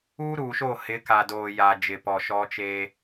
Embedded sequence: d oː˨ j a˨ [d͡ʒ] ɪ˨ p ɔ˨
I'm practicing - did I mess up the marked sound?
no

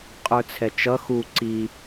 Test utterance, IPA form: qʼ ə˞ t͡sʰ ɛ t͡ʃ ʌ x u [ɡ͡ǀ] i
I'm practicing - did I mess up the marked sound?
yes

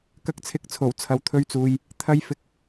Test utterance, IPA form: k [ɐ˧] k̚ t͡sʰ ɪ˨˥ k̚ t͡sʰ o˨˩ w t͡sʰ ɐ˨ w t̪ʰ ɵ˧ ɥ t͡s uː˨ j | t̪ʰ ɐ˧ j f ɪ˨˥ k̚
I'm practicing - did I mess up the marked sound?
no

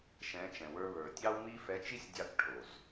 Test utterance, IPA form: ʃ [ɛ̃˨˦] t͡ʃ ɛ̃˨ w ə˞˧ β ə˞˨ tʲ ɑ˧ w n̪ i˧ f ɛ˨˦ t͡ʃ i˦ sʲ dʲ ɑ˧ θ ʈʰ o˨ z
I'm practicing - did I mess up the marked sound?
no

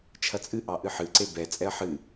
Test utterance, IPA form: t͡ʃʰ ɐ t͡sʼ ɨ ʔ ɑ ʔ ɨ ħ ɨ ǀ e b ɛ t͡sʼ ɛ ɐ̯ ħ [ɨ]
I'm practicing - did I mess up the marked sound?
no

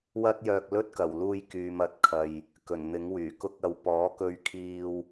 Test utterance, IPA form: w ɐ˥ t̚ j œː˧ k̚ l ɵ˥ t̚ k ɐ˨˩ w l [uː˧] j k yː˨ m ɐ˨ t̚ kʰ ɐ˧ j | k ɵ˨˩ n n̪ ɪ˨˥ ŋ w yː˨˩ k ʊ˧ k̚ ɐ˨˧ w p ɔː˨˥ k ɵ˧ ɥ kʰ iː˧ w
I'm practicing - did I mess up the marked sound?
no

